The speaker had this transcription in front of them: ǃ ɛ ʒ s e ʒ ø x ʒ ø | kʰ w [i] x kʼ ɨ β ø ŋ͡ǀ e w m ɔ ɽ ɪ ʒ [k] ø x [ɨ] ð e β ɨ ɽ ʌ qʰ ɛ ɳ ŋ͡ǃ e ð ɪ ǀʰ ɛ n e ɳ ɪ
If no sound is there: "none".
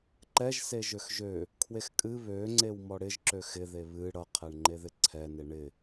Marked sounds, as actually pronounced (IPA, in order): e, ǁ, ɪ

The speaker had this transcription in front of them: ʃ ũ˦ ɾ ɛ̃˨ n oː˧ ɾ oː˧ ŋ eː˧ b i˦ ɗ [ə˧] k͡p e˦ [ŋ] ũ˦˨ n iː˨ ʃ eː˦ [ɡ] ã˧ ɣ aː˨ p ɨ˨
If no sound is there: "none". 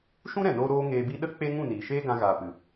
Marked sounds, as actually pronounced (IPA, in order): ə˦, ŋ, ɡ

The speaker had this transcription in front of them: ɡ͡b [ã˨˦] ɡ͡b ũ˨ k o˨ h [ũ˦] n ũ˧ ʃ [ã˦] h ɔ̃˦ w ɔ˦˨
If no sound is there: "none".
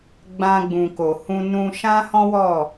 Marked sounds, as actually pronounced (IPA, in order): ã˧, ũ˧, ã˦

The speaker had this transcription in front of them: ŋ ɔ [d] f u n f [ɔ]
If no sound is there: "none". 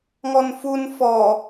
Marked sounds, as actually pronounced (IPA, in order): n, ɔ

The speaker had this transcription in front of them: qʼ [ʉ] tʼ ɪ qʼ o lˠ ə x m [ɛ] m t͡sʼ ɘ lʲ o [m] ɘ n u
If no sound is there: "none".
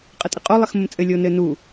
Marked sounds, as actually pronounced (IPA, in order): ə, ə, n

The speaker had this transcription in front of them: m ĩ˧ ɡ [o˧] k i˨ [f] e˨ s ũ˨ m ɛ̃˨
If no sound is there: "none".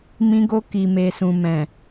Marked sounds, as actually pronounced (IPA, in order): o˧, m

